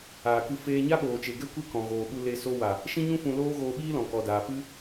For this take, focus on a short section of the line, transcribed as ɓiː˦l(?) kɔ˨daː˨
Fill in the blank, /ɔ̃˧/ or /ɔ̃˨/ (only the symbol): ɔ̃˨